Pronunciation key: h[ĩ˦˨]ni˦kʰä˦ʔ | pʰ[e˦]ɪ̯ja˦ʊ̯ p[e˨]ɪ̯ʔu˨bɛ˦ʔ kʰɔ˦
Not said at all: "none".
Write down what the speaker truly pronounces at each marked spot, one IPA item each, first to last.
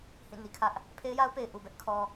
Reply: ĩ˦˨, e˦, e˨

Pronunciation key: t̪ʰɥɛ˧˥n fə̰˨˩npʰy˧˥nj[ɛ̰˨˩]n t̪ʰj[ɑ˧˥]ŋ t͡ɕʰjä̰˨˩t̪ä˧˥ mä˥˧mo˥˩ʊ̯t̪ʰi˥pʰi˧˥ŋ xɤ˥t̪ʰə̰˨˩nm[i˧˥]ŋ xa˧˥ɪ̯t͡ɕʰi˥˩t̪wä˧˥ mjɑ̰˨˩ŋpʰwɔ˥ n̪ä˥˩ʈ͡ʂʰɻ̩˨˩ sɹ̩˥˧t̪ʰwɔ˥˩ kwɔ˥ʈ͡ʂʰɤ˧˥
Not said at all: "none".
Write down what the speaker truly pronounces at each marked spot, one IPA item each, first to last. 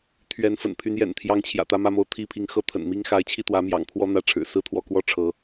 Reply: ɛ̰˨˩, ɑ˧˥, i˥

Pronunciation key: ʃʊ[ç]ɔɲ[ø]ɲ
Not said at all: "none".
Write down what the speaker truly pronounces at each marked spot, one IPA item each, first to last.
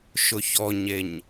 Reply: ç, e

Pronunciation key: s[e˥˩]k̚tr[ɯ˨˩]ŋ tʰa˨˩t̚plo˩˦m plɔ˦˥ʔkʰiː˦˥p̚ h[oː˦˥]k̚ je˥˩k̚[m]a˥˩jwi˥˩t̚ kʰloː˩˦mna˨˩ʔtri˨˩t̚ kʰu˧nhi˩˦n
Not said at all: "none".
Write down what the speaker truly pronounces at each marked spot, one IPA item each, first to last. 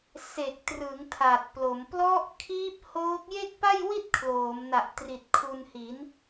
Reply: e˨˩, ɯ˩˦, oː˦˥, p

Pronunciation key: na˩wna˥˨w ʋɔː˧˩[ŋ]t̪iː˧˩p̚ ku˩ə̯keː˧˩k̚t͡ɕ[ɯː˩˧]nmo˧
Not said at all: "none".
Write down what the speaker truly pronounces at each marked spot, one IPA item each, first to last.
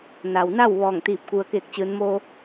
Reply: ŋ, ɯː˩˧

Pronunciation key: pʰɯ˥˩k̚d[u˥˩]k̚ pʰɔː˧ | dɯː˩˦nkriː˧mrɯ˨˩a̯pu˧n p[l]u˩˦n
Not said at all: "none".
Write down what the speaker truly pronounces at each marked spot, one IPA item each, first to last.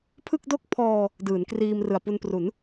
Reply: o˥˩, r

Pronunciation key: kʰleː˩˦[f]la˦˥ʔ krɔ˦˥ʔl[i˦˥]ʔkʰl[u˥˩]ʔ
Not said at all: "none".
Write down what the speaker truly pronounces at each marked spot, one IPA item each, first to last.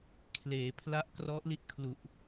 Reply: pʰ, i˦˥, u˨˩

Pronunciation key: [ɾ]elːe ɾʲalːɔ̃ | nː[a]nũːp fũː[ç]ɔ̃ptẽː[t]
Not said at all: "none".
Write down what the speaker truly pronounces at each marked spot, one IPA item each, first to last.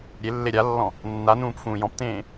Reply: ɾʲ, a, j, none

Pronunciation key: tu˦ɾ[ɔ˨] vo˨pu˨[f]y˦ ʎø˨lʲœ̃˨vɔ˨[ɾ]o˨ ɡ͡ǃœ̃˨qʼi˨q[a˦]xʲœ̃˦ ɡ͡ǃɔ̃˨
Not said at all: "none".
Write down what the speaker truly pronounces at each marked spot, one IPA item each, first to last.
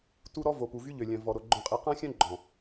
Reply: ɔ˦, v, ɾ, ã˦

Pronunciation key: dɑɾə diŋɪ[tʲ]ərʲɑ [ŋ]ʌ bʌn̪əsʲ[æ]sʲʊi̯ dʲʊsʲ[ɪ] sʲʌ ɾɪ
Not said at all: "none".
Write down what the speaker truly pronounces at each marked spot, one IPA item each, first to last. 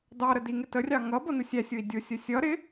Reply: t, ŋ, æ, ə

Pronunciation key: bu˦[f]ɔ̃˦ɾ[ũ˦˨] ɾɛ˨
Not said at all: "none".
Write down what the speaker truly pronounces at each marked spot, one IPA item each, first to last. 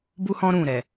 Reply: h, ũ˦˨

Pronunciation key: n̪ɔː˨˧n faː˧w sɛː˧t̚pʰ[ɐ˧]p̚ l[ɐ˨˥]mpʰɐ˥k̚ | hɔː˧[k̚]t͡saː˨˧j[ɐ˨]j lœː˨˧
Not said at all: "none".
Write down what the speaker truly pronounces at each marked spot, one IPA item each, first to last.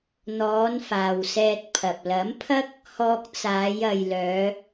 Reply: ɐ˨, ɐ˨˥, k̚, ɐ˨

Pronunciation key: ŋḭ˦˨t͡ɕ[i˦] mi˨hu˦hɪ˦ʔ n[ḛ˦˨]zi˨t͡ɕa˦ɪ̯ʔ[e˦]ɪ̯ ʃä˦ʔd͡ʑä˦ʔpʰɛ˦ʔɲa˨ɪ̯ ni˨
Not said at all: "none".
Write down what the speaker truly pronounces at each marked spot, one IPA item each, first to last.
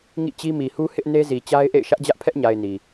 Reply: i˦, e˦, ḛ˦˨

